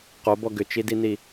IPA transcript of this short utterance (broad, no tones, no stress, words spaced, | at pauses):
qobɔ ɡʏt͡ʃidini